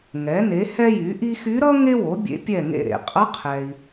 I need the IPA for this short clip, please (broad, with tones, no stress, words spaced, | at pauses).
ŋɛ˩˥ne˩˥ hɛ˥jy˩˥ʔi˥ xy˧˥ɾʌ˥ ŋe˥wo˩˥ bʲḛ˧˥pʲɛ˦˨ ŋḛ˦˨ɾḛ˨ qʼʌ˧˥qʰɛ˨i̯